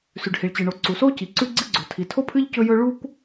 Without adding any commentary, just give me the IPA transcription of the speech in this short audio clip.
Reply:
s ʉ˩ ɖ h i˩ ɭ t͡ɕ ɨ˩ ɳ o˩ ǀ u˩ s o˥ c i˩ ǀ ʉ˥ ɡ͡ǀ ɨ˥ ɡ͡ǀ o˩ tʰ i˩ tʰ o˥ pʰ ɨ˥ ʎ c ɵ˥ j ɵ˥ ɭ u˥ kʷ

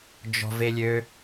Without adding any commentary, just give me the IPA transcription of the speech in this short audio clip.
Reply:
d͡ʒ ɔ̤ v e lʲ ø

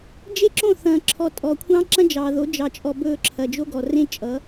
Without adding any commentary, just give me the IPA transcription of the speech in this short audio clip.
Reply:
d͡ʒ e˦˨ ǁ õ˦˨ θ ɐ̃ː˨ ǁʰ ɔ˨ tʼ ɔ˨ kʷʰ ɑ̃˦ ǁ ɐ̃˦ d͡ʒ ɑː˨ ð o˨˦ d͡ʒ ɑ˨ t͡ʃʼ ɔ˨ b ɵː˦˨ ǁʰ ɐ˨ d͡ʒ o˦ ɡ ɔ˨ r ẽ˦ t͡ʃʼ ʌ˨˦

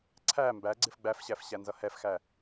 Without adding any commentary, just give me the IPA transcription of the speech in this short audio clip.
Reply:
ǀʰ æ m b æ ɡ͡ǀ ɪ f ɡ͡b æ f ɕ æ f ɕ æ n z ʌ h ɛ f x æ

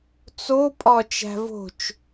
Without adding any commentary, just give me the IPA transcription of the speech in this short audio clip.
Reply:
t͡s o pʼ ɒ t͡ʃ æ̤ v o̤ t͡ʃ

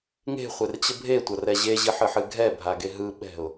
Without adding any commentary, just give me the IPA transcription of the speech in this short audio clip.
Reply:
ŋ e̤ χʷ e r t͡ɕ ə bʱ e tʷ ɐ r ɛ ʑ e ʑ ɨ ħ ɨ ħ ɨ ɡʱ ɛ bʱ a ɡ e ɦ ɯ ɓ ɛ̤ ʊ̯

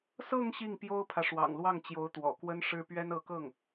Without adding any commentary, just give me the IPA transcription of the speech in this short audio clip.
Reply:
s ɤ˥˧ ŋ ɕ i˥˩ ŋ p j o˥ ʊ̯ pʰ ä˨ ʂ w ɑ̰˨˩ ŋ l w ɑ˥˩ ŋ t͡ɕ j o˧˥ ʊ̯ t̪ w ɔ̰˨˩ k w ə˥ n ʂ ɻ̩˥ p ɥ ɛ˥ n ɤ˧˥ k ɤ˥˩ ŋ

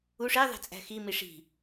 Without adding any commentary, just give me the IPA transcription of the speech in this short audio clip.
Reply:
u ʂ e ðˤ e̤ t͡sʼ æ̤ x i m i ʂ i̤

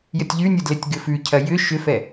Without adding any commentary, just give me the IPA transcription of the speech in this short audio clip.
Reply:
j ə tʲ ʎ ʉ nʲ ɘ d l ɘ tʲ ɡ ɘ f ʉ cʰ ɐ j ʏ ʃ ʏ f ɛ

